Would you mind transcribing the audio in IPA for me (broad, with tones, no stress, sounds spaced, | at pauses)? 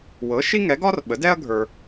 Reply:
w ɤ˩˥ ʃ i˥ ŋ ɛ˩˥ ɡ ɒ˥ r ɓ ə˩˥ d ɛ˥ ɐ̯ ɡʱ ə˞˨